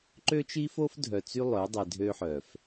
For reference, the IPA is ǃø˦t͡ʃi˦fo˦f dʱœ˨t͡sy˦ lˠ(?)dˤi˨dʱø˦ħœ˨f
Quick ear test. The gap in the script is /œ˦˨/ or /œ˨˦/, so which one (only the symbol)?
œ˨˦